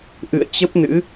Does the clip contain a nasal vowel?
no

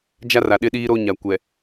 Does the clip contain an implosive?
yes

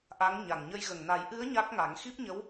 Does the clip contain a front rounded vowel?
no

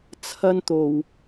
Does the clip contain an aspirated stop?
yes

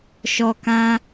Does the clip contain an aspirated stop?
no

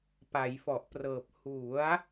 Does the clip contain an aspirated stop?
no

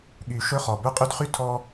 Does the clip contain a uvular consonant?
yes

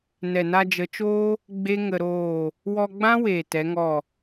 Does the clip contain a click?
no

